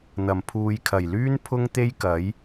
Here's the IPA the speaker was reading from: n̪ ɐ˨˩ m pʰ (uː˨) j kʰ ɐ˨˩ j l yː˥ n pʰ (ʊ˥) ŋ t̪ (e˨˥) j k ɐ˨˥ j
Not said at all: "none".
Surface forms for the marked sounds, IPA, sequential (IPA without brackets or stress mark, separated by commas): uː˨, ʊ˥, e˥